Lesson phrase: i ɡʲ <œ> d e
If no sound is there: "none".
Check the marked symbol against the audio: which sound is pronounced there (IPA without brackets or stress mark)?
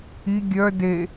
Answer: œ